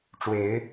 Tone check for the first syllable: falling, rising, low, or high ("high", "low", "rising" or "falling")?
rising